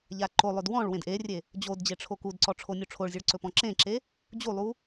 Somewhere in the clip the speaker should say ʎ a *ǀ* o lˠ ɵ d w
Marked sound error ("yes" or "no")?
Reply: yes